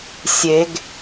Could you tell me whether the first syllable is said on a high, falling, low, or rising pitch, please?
rising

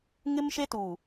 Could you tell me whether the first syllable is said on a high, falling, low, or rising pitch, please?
high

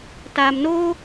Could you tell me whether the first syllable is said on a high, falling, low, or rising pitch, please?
low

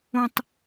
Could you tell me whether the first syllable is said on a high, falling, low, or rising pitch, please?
low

